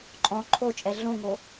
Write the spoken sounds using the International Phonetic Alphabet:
ǃʼ ɔ̃ ǃʰ o t͡ʃʼ ɛ ɮ õ ŋ o

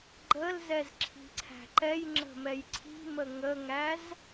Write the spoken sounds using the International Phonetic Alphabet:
ɡ͡ǃ ə l z ɛ z ǁʰ i̤ ǀʰ æ̤ ǃ ɛ j ŋ͡ǁ ə̤ m ɛ j ǀʰ i̤ m ə ŋ ə ŋ æ z

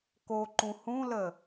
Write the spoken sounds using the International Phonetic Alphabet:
k o ǃ ũ h ũ l ə

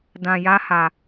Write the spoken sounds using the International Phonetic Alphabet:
d ã˧ j a˦ h a˧

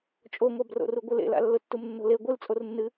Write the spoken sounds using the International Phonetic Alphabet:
t͡ʃʼ o ŋʷ a b r o̰ r u ɡʷ ɨ l ḛ l a̰ lː ʊ tː u m nː o̤ l e ɡʷ ɨ l t͡sʼ o r nː ɨ

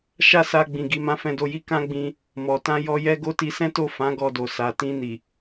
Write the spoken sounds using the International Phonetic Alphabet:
ʃ a˦ s a˧ ɡ͡b ĩ˨ ɡ i˨˦ m ã˧ f ɛ̃˧ d o˧ j i˦ k ã˦ ɡ͡b ĩ˧ | m ɔ˨ t ã˧ j ɔ˧ j ɛ˦ ɡ o˧ t i˧ s ɛ̃˦ t o˦˨ f ã˨˦ ɡ ɔ˧ d o˨ s a˨ t ĩ˧ n i˨

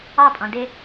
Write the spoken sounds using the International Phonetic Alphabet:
ɑ pʼ ɔ̃ d ɪ

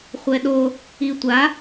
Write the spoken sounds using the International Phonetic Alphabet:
χʷ ɛ ɗ o | i tʷ a

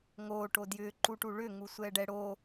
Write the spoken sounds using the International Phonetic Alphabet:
ŋ oː ʈ o d j ʏː ǃ u ʈ u ɭ ʏ ŋ u sʷ ɛː ɖ ɛ ɽ oː

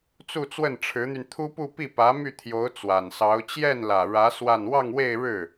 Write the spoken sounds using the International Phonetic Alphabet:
t͡s u˥˧ t͡s w ə˥˩ n ʈ͡ʂʰ ɻ̩˧˥ n̪ y˧ n t̪ʰ u˥ p u˥˧ p i˥˩ p ä˧˥ m y˥˩ t̪ʰ j o˧˥ ʊ̯ t͡s w a˨˩ n s ɑ˧˥ ʊ̯ t͡ɕ j ɛ˥˩ n l ä˨˩ ɻ ä˧˥ s w a˥˧ n w ɑ˥˧ ŋ w e˥˧ ɪ̯ ɻ ɻ̩˥˩

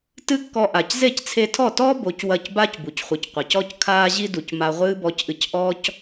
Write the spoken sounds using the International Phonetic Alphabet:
t ɨ˦ kː ɔ˧ ʔ a˨ c z e˦˨ c t͡sʰ e˧ tʰ ɔ˦˨ t ɔː˦ b o˨˦ c w ɐ˦˨ c b aː˦ c b u˨ c χʷ ɨ˨ c qʷ ɐ˨ c ɔ˦ c kʰ aː˦ ʑ i˦ d u˨ c m a˧ ʁʷ ɨː˦ b ɔ˧ c ʔ ɨ˧ c ʔ ɔː˦ c

